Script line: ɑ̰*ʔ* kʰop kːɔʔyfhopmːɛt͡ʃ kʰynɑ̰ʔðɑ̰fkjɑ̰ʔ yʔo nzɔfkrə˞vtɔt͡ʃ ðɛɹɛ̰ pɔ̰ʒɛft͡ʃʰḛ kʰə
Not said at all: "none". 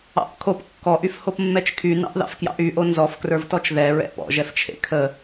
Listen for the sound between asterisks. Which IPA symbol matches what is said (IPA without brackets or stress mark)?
ʔ